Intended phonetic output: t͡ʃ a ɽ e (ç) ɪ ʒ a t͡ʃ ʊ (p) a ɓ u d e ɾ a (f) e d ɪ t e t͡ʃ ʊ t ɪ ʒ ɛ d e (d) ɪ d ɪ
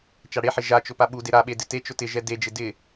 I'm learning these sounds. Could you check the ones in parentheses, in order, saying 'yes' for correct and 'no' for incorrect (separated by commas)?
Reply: no, yes, no, no